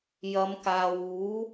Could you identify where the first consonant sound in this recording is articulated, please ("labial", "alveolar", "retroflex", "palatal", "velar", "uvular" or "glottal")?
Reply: palatal